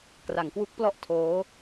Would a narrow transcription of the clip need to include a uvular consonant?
no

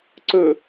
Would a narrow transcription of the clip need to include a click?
yes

